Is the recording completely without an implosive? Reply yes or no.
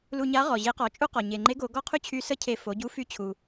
yes